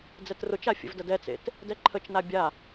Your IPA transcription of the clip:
d͡z ɛ t r ʊ t͡ʃ a fʲ ə̰ v d ə d ɛ t͡s ḛ t | d ɛ ǃʰ ə t͡ʃ n a bʲ a

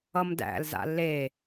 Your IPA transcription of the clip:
ʌ m d æ̰ l z a̰ l e

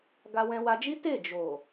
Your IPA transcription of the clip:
ɡ a˧ w ɛ̃˧ w a˧ d͡ʒ i˦ t e˦˨ d͡ʒ o˨

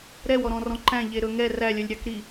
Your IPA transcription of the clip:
ɾ ɛ w ɔ ɾ ɔ̃ r ɔ̃ ǃ æ̃ ʎ e ɾ ɵ ŋ ɛ r æ lʲ œ lʲ ɾʲ ɑ k ɾ i

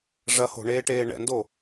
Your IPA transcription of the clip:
ʐ ɐ h o̤ ɳ eː ʈ eː ɳ ɛ̰ n d o

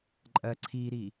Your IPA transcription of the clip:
ǃʼ ɜ ǀʰ iː ɾ i

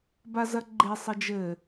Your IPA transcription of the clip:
b a z ɐ ɡ͡ǃ e sˤ ɘ d͡ʒ ɘ

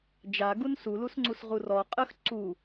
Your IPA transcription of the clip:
d͡ʒ a ɡ u n s u l u s ŋ͡ǀ u s ʁ u r ɔ qʼ ə x ǀ u

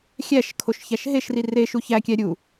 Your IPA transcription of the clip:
xʲ æ ʃ kʰ o ʃ ç æ ʃ ɦ e ʃ r i r e ʃ u ç æ kʲ æ ɾʲ u

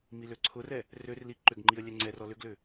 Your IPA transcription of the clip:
m i l ø ǀʰ ʊ r ɛ | r ø r l i ǃ ʏ ɡ ŋ͡ǃ i ə̯ lʲ ɛ ŋ͡ǀ ɛ r ɔ l ʏ ɡ l ʏ

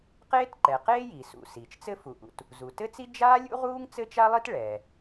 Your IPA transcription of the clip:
q eː˥ t ǃ ɛ˩ q eː˥ j i˩ s ṵ˩ s iː˩ t͡ʃ t͡s ɘ˥ f u˩ ʔ ṵ˩ t | z u˩ t ɘ˥ t͡s i˥ d͡ʒ aː˥ lʲ ṵ˥ ʁ uː˥ ŋ t͡s ɘ˥ t͡ʃ a˥ lˠ i˥ t ɭ ɛː˩

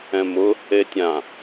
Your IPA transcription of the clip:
ɛ̃ m ʊ | e tʲ ã

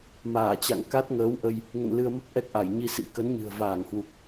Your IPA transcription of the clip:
m aː˧˩ t͡ɕ a̰˧˨ ŋ k a˦˥ t̚ ŋ əː˨˦ w ʔ ə˧ j | ŋ ə̰˧˨ n l ɨ˧ ə̯ m ə˦˥ p̚ ʔ ɛ˦˥ k̚ ʔ a˧˩ j ɲ i˧ s ḭ˧˥ k ə˨˦ n ɲ ɨ̤˨˩ ə̯ v aː˧˩ ŋ h w u˨˩ k̚

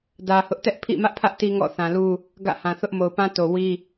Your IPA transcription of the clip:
d ä˨ h ʊ˦ ʔ t ɛ˦ ʔ pʰ ḭ˦˨ m ä˦ ʔ pʰ ä˦ ʔ t i˦ ŋ ɔ̰˦˨ θ ã˨ l u˦ | ɡ ä̰˦˨ h ã˨ θ ʊ˦ ʔ m o˨ ʊ̯ p ã˦ t o˨ w i˦

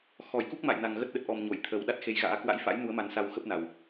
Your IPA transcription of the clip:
x ɔ˧˩ j k u˦˥ k̚ m a̰˧˨ j n a˨˩ ŋ ɣ ə˦˥ t̚ ɗ ə˨˩ t̚ ʔ ɔ˨˩ m ɲ o˧˩ j t̪ʰ ə˨˩ w ɗ a˦˥ t̚ x e˨˦ j ɣ a̰ː˧˥ k w a̰˧˥ j f a̰˧˥ j n u˨˦ ə̯ m a˨˦ n s a˧ w x ə˦˥ p̚ n a˨˩ w

